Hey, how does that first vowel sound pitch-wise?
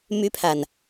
high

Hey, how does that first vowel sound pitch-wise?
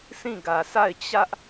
falling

